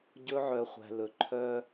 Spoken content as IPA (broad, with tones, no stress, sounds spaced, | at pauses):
ɟ ɵ˧˥ ʕ œ˩˧ χʷ æ̤˩ l ɵ˩ ǃʰ œ˧